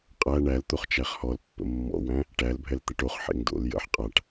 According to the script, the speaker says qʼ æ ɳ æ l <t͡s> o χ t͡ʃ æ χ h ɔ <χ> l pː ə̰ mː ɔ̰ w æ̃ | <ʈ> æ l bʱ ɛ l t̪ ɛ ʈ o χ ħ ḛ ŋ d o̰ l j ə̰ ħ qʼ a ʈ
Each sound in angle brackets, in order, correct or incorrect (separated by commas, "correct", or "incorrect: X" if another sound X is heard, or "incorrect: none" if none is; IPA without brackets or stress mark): incorrect: t̪, incorrect: none, correct